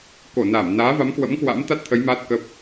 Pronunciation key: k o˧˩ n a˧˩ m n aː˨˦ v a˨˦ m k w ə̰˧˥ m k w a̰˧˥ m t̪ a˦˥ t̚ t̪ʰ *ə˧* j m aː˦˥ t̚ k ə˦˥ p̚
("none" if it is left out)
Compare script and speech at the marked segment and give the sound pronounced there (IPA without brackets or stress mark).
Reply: ə˨˦